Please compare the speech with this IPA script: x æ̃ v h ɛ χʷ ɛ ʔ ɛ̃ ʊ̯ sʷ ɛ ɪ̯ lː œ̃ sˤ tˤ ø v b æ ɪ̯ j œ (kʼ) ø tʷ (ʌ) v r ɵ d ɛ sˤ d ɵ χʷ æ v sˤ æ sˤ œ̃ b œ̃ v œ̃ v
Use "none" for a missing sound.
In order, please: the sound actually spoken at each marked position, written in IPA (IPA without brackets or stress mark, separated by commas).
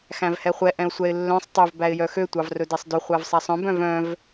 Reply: x, ɑ